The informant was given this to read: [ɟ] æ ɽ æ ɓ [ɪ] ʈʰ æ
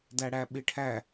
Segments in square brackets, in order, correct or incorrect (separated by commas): incorrect, correct